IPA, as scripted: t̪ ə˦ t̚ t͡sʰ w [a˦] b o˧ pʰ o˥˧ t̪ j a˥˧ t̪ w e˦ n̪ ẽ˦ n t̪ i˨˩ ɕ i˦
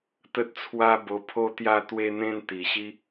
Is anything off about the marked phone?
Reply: no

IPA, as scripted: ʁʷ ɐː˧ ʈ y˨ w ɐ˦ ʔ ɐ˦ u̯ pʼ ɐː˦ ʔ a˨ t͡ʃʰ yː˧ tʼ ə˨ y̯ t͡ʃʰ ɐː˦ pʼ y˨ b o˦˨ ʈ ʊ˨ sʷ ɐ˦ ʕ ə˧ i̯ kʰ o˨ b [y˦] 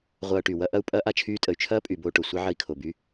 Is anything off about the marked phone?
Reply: no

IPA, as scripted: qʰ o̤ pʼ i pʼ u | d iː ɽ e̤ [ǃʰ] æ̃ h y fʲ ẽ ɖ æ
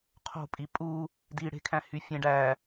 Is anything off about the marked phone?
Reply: yes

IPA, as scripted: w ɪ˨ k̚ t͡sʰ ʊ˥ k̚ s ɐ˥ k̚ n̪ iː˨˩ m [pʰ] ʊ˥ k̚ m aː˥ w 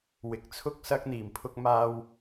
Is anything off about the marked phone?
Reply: no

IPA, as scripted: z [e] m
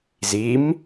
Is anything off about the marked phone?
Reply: yes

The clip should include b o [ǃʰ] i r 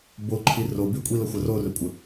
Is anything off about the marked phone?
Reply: no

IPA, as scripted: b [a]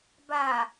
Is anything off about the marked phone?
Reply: no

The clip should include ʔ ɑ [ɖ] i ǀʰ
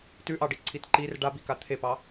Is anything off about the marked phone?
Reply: no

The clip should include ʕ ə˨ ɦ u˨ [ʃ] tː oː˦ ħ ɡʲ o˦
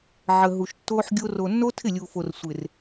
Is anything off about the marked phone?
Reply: no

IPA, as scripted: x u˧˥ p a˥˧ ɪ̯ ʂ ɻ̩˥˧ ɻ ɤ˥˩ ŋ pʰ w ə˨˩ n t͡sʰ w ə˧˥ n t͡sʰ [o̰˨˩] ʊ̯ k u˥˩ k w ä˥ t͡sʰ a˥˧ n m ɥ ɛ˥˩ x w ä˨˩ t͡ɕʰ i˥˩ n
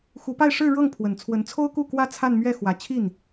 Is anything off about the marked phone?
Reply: yes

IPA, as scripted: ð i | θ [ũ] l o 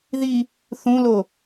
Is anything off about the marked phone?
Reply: no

